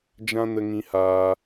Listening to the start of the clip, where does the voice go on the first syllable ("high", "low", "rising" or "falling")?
high